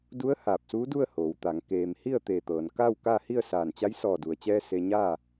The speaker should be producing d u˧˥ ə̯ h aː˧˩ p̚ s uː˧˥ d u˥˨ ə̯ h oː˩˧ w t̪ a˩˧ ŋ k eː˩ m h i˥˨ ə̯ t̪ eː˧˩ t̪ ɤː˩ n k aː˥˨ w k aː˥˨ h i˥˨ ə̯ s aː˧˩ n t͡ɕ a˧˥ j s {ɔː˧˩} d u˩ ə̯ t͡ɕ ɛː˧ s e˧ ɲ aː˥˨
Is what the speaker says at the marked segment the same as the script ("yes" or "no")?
yes